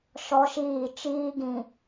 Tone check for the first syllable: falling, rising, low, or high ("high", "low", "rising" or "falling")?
high